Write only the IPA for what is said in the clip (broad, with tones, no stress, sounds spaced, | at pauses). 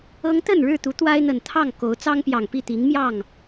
ɤ˦ ŋ t̪ ə˥˨ n ɻ ɻ̩˥˨ t̪ u˨˦ t̪ w a˦ ɪ̯ n̪ ə˨˩ n t̪ʰ ɑ˥˨ ŋ k o˨˦ ʊ̯ t͡s ɑ˦ ŋ p j ɑ˨˩ ŋ p i˥˨ t̪ i˨˦ ŋ m j ɑ˥˨ ŋ